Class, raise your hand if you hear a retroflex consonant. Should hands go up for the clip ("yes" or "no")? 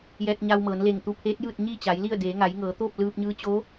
no